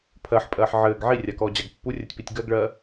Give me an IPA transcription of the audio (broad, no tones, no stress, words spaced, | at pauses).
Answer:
pʰɜħpʼɜːħ ʕɘːɡ ʕirʲakɔːd͡ʑaɡ pːurʲɜtʲpitʲ ɡɜɡɭɜː